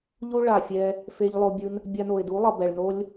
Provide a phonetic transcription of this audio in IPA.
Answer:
ʎ u˦ ɭ a˨ fʲ ɛ˧ | f e˧ ʎ lˠ o˧ bʲ ɯ˧ n | bʲ a˧ n o˨ ɪ̯ d u˨˦ lˠ ʌ˨ b ɛ˨ ɭ n o˦ lʲ

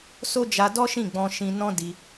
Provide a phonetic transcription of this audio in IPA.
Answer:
s o˦ d͡ʒ a˧ d ɔ˦ ʃ ĩ˦˨ ɡ͡b ɔ̃˧ ʃ ĩ˧ n ɔ̃˦ d i˧

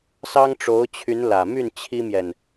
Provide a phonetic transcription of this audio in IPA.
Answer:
s ɑ˥ ŋ ʈ͡ʂ o˧˥ ʊ̯ t͡ɕʰ y˧˥ n l ä˨˩ m y˥˩ n t͡ɕʰ i˥ m j ɛ˨ n

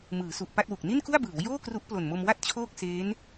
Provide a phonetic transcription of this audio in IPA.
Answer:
m ɯː˩˦ s u˨˩ ʔ p a˥˩ t̚ w u˨˩ k̚ n i˥˩ n k u˥˩ a̯ b ɯː˩˦ w j oː˥˩ k r u˦˥ ʔ p l o˨˩ n m o˧ m w a˥˩ t̚ t͡ɕʰ oː˥˩ k̚ s eː˦˥ n

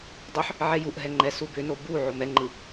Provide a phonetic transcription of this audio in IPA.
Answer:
dˤ ʏ ħ | ʕ ɛ j u ʔ ɦ ɛ ŋ͡ǃ ɛ s u b ʏ n o b u ʕ o m ɛ ŋ͡ǃ ɯ

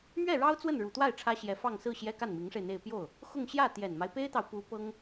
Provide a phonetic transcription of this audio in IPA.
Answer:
m ɥ ɛ˥˩ ɻ ɑ˥ ʊ̯ t͡s w ə˥˩ n ɻ u˨˩ t̪ w a˥˩ ɪ̯ ʈ͡ʂʰ ä˥ ɕ j ɛ˧˥ f ɑ˥˧ ŋ s ɹ̩˥˩ ɕ j ɛ˥ k a˥˩ n m i˧˥ ŋ ʂ e˧ ɪ̯ n̪ e˥˧ ɪ̯ p j o˥˩ ʊ̯ | x ʊ˥˧ ŋ ɕ j ä˥˩ t̪ j ɛ˨˩ n m a˦ ɪ̯ p e˥ ɪ̯ t̪ ɑ˨ ʊ̯ p u˧˥ p ɤ˥ ŋ

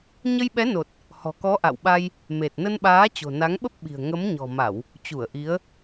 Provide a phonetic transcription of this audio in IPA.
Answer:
ɲ ə˧ j ɓ ɛ˨˦ n o˨˩ t̚ | h ɔ̤˨˩ k ɔ˨˦ ʔ a̰˧˨ w ɓ a˧ j | m e˨˩ t̚ n ə˧ n ɓ aː˨˦ t͡ɕ o̤˨˩ n a˨˦ ŋ ɓ ə˦˥ p̚ ɓ i̤˨˩ ə̯ ŋ ə˨˦ m ɲ ɔ̤˨˩ m a˧˩˨ w | t͡ɕ u˧˩ ə̯ ʔ i˨˦ ə̯

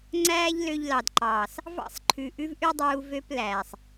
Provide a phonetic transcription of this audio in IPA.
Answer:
ŋ͡ǀ æː˦ ʎ l ø˧ ʎ l ɑ˨ d ǃ ɑː˨ s | v ɑ̰˦ sˤ ǃʰ ʉ˨ ʔ ʉ˦ v ʔ ʉ˦ dˤ uː˧ v ø˦ p l æː˨ sˤ

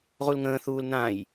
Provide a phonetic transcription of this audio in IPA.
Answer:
ʁ u l ŋ ə̃ː θ uː l n ã j

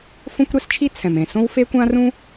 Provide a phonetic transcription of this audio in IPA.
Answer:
f õ˥ kʷ ɾ ɛ˥ s t͡ʃʰ i˥ t͡sʰ ɛ̃˩ m ẽ˩ s õ˥ w f e˥ kʷ ã˥ r ũ˥

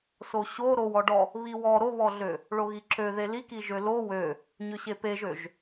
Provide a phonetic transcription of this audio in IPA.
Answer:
s o ɕ o ɾ o w ɔ ɖ ɔ | β i w ɔ ɾ o β ɔ ɮ ø | ɭ o ɣ i ǁ ø ð e l i k i ʒ ø l o w ø | ɲ ø ɕ e p e ʒ ø ʒ

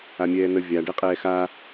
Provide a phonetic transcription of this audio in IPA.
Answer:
a mʲ ɛː n ə vʲ a ɖ ɛ qʼ ɛː x a

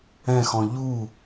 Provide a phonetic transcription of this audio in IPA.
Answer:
ɛ̃ x ɔ̃ ʎ u

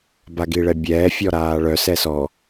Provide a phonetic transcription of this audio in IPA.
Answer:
b a ɡ i ɭ ɛ bʲ ɛː fʲ ɔ ɾ aː ɭ œ s ɛ s ɔ

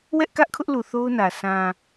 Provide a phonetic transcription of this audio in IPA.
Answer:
w ɛ˦ ʔ k ä˦ ʔ kʰ ʊ˦ ʔ l u˨ θ o˦ ʊ̯ n ä˨ s ã˨

